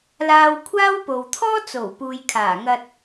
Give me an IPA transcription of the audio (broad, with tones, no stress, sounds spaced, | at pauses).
l aː˧ w kʷʰ aː˥ w p o˨ w t̪ʰ ɔː˥ t͡s o˨˩ w p uː˨ j kʰ aː˨˩ ŋ ɐ˧ t̚